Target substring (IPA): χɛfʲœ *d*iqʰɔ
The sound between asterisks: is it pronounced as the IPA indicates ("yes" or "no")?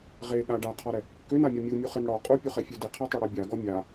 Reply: yes